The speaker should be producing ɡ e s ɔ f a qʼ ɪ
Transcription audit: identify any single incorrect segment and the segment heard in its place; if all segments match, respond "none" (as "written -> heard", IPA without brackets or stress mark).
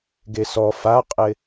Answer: none